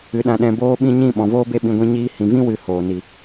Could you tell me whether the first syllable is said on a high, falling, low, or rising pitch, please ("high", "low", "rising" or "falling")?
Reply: rising